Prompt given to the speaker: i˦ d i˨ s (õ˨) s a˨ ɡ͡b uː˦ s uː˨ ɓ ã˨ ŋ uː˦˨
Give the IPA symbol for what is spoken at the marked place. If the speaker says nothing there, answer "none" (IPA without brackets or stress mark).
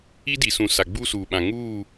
ũ˨